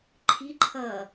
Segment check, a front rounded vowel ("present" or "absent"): absent